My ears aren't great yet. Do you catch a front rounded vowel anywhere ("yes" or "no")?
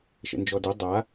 no